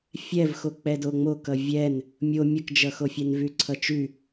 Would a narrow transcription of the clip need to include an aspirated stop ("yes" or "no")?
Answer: yes